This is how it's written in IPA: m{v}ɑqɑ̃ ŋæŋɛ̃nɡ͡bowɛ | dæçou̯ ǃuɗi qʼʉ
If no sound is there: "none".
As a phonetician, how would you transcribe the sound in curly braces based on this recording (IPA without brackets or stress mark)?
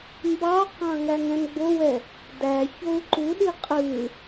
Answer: b